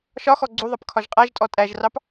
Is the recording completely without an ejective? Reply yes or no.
no